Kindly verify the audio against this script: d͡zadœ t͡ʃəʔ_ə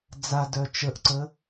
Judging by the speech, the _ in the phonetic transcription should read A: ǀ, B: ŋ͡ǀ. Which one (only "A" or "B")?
A